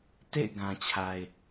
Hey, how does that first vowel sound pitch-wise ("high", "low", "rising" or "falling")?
falling